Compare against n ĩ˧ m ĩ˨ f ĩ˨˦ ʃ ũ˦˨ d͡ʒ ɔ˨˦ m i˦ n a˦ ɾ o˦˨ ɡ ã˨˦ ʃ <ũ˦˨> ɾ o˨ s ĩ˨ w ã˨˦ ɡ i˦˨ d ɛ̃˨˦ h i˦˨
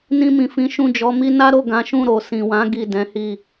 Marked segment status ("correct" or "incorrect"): correct